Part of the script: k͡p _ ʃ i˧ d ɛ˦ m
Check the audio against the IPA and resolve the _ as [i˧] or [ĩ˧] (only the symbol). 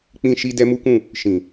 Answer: ĩ˧